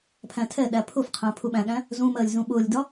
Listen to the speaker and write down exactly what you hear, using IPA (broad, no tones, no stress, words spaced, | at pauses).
pʰæ̃tʰɛɗæ pʰʊfqʰæ̃ pʰuɓæ̃ɠæ̃ | zũmɜlʲ zũɓʊːlʲdɒ